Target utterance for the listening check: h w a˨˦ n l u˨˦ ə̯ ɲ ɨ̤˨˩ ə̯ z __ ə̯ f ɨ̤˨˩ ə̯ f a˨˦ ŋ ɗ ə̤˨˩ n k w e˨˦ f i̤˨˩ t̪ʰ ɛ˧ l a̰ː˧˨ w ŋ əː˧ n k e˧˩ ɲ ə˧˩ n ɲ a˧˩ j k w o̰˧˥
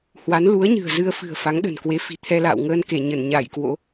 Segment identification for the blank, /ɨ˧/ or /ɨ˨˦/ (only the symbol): ɨ˧